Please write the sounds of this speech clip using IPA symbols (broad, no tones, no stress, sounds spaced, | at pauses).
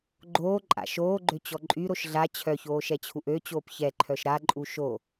ɡ͡ǃ oː ǃʼ a̰ ʃ oː ɡ͡ǃ ø t͡ɕ ɔ ǃʼ y ɾ o ʃ ɮ a t͡ɕʰ œ ç oː ʃ ɛ t͡ɕʰ u ʔ ø t͡ɕ oː p ç ɛ ǃʰ œ ʃ ɾ a ǃʼ u ʃ o